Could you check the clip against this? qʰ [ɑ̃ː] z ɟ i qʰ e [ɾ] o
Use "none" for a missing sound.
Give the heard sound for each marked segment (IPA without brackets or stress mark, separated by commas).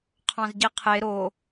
ɑ̃, ɾ